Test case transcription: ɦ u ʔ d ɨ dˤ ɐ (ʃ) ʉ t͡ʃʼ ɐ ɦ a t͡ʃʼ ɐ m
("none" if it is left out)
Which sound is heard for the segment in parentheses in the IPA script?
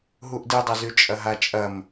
z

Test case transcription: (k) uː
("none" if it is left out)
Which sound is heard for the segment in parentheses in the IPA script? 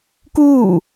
k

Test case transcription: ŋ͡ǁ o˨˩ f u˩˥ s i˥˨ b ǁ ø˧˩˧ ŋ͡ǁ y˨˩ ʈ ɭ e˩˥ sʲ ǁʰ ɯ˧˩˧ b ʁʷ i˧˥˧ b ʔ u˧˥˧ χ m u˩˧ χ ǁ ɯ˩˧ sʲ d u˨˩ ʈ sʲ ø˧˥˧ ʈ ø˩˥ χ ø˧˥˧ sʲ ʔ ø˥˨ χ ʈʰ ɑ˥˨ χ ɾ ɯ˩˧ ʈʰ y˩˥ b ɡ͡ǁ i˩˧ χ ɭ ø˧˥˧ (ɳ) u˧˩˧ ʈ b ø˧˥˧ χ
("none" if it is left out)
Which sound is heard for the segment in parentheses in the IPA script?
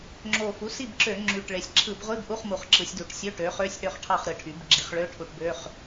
ʈʰ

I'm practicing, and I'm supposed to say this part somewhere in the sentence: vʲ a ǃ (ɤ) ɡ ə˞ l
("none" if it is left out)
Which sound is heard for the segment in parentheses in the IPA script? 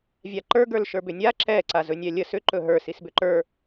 ə˞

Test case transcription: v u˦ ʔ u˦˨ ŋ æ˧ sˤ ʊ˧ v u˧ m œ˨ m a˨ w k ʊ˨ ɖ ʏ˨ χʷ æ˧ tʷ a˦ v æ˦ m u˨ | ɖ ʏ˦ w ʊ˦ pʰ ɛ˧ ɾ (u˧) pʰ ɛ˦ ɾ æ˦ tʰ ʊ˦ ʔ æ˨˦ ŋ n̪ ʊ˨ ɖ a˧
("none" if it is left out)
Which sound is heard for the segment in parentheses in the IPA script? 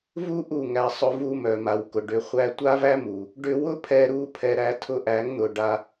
u˧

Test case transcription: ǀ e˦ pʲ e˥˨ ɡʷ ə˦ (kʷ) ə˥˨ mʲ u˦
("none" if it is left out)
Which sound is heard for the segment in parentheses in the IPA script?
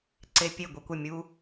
kʷ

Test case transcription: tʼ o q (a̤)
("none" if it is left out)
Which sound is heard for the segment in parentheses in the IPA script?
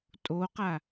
a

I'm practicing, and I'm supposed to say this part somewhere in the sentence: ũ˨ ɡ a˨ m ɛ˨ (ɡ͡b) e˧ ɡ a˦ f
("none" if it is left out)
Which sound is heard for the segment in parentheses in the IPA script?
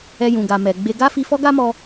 ɡ͡b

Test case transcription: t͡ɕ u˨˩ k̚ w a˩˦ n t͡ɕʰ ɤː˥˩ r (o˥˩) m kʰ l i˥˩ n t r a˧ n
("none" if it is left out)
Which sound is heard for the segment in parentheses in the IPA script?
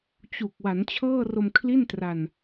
o˧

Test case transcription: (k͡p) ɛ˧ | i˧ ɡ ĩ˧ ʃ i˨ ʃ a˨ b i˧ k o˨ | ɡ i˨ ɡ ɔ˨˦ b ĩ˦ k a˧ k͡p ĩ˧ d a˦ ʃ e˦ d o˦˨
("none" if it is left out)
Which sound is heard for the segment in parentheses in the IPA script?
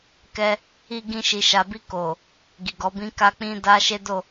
k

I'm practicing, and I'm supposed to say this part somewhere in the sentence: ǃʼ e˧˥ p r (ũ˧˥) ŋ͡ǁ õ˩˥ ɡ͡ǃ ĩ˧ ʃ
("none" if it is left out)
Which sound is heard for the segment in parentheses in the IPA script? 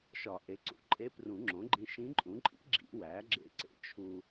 ũ˨˩˦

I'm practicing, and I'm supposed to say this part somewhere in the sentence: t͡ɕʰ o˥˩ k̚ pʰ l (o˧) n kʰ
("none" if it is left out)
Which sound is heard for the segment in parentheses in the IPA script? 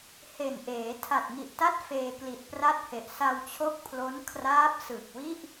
o˦˥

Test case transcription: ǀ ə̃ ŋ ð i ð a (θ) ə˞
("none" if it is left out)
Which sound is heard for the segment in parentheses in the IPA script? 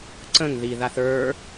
θ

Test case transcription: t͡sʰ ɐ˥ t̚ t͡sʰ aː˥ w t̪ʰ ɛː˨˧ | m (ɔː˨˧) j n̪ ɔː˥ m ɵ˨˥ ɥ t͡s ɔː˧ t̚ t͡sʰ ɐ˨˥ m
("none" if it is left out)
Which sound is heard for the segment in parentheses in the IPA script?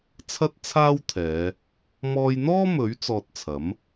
ɔː˧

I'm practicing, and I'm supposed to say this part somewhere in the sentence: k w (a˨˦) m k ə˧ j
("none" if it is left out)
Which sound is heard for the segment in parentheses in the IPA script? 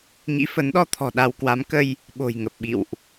a˨˦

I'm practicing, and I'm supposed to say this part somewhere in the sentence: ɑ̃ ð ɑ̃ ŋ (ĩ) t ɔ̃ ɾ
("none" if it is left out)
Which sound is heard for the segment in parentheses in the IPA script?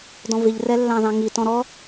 i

